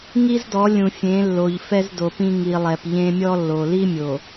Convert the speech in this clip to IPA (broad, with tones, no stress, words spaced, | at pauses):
ŋi˦zdɔ˨˦ lʲũ˨fʲẽ˨˦lːo˨ʎ fɛ˦zdo˨pĩ˦ ŋi˨lˠɛ˨p ʎẽ˦ mʲɔ˦lːo˨ li˦mʲo˨